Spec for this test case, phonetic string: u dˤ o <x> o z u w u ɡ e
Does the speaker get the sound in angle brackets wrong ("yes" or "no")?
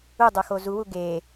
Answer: no